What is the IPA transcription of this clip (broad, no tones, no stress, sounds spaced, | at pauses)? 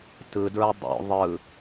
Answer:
t ɯ d ɹ ɯ dˤ o̰ ðˤ ɯ